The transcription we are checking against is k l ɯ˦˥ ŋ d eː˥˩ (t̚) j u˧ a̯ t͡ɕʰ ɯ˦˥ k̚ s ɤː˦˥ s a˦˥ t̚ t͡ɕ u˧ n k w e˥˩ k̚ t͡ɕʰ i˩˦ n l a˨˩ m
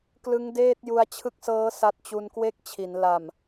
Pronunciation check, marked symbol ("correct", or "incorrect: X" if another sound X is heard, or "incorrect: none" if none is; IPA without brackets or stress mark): correct